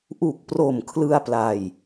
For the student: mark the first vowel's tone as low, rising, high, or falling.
low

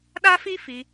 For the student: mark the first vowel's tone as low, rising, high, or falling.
high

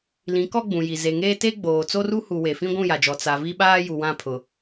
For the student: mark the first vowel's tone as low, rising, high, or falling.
rising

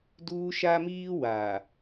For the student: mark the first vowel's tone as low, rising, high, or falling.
high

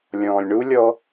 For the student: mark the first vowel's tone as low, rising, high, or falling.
low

